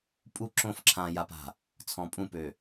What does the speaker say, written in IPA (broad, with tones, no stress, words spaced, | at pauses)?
pʼu˦˨ǁõ˦˨f ǁʰã˨ja˨pa̤˨ | t͡sʰɔ̃˨pʼũ˦˨pø˨